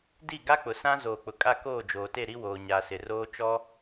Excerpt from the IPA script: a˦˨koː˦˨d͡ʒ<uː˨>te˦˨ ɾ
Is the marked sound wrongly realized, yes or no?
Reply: yes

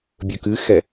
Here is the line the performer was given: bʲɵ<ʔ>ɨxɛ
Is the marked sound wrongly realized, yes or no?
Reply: yes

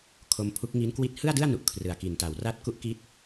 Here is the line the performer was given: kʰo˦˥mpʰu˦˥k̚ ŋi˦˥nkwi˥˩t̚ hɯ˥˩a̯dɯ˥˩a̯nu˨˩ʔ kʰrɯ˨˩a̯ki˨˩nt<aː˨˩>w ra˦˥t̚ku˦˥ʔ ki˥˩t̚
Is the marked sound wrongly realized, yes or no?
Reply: yes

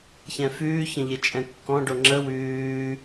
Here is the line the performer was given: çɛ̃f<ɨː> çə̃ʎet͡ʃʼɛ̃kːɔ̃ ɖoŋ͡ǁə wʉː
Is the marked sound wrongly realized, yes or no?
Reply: yes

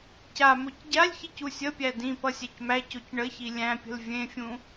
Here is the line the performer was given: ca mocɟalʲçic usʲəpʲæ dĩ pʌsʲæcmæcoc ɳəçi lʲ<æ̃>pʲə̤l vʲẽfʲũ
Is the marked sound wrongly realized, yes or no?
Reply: no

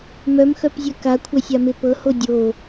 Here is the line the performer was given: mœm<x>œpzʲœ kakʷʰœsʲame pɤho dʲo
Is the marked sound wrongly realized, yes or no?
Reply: no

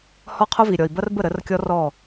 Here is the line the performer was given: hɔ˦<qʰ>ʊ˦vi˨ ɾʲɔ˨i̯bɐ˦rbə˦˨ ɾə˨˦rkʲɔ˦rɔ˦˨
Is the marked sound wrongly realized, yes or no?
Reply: no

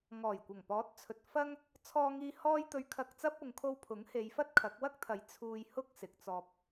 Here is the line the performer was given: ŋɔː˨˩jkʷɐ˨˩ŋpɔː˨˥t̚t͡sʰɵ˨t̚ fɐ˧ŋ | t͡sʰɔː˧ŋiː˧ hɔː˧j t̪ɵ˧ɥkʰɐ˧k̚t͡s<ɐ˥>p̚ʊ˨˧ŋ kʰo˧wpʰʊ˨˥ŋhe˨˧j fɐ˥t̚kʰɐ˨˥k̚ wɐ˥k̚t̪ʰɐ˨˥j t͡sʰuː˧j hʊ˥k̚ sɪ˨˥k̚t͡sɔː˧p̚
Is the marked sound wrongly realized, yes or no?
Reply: no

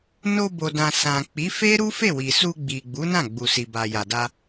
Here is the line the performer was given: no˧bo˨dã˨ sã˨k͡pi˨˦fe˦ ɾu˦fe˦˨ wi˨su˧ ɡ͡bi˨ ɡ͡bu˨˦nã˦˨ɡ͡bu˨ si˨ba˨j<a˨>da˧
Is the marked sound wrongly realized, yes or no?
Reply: no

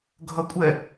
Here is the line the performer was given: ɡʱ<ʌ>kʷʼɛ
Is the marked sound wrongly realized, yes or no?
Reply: no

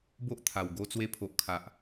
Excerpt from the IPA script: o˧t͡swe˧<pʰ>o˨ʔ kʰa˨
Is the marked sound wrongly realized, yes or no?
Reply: no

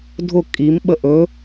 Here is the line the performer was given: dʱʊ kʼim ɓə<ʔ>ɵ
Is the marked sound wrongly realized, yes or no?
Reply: no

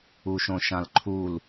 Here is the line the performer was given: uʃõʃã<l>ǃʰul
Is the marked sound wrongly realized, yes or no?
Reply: no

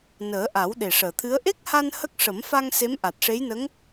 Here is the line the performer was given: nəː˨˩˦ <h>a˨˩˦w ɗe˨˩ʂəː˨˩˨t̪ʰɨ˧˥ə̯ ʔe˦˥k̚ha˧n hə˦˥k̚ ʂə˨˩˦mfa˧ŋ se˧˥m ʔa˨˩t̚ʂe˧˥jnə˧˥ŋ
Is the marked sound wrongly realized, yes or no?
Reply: yes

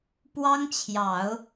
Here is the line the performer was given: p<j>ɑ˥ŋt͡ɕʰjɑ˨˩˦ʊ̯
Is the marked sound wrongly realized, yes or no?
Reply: yes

